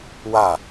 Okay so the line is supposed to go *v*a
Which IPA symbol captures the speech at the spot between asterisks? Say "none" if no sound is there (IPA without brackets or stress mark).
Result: w